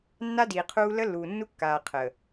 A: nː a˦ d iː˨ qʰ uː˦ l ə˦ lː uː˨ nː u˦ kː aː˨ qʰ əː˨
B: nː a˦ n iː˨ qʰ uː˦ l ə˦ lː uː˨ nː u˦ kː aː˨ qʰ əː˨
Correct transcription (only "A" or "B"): A